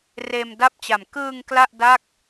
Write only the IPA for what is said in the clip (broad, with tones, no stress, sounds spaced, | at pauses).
r eː˧ m d a˥˩ p̚ t͡ɕ a˨˩ m k ɯː˧ ŋ k l a˥˩ ʔ d a˥˩ k̚